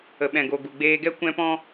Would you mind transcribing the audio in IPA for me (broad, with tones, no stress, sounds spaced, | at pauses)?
ə˨ ɓ ɛ̃˨ ɡ o˨ ɡ u˨ ɡ͡b eː˧ ɡ ɛ˦ kʷ ɛ̃˦ p ɔ̃˦